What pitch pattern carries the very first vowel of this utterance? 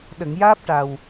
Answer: low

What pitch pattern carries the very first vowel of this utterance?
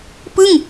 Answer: falling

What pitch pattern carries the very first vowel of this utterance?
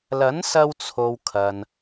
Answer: rising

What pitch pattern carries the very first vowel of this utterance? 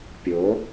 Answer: rising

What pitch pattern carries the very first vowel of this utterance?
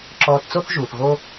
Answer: low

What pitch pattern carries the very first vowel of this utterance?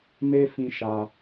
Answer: high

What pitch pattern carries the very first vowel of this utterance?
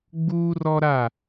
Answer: high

